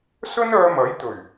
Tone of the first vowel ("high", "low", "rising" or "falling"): high